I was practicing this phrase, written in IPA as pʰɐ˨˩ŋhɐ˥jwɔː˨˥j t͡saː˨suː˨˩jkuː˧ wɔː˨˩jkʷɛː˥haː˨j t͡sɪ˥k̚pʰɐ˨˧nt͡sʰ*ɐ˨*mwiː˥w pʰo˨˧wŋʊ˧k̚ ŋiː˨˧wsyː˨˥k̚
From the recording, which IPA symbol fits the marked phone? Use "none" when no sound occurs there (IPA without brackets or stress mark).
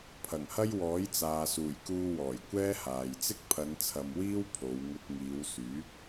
ɐ˨